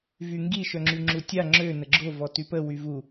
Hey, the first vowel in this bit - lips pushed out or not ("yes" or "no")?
yes